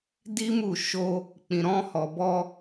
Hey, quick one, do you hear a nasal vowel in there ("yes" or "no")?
yes